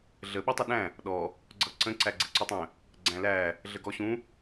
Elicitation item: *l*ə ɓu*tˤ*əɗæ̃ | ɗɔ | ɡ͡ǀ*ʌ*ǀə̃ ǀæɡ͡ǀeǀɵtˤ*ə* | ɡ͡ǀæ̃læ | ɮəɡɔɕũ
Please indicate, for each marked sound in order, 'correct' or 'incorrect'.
incorrect: ɮ, correct, correct, incorrect: ə̃

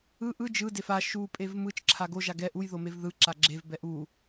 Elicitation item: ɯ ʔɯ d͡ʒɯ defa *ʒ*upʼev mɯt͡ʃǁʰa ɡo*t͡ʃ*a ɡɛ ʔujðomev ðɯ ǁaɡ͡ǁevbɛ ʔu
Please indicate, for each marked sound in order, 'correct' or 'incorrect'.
incorrect: ʃ, incorrect: ʒ

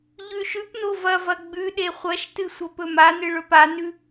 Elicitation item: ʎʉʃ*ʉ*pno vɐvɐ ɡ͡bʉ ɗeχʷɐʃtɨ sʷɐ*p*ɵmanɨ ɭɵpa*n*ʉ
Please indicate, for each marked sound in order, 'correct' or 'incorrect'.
correct, correct, correct

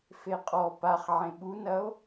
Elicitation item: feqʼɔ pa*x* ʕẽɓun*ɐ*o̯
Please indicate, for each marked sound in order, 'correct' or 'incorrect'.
incorrect: χ, correct

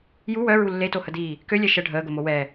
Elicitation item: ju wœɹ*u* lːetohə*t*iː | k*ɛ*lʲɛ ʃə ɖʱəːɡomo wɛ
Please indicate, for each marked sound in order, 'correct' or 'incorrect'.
correct, incorrect: d, incorrect: ø

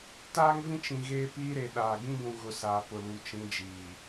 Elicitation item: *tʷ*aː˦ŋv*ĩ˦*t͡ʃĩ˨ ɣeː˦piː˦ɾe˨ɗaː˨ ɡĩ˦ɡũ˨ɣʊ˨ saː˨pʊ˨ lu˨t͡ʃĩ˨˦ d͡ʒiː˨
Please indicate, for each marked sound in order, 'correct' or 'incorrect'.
incorrect: t, correct

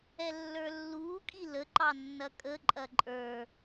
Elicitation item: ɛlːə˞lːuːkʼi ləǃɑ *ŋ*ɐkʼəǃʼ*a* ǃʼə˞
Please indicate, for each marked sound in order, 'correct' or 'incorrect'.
incorrect: nː, incorrect: ɐ

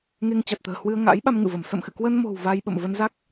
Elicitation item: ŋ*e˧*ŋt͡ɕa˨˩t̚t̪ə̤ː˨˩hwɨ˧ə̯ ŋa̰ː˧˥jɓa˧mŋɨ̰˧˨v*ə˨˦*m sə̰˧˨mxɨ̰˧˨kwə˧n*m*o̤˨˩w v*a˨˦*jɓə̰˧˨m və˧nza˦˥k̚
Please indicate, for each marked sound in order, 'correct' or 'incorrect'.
correct, incorrect: ə˧˩, correct, incorrect: a˧

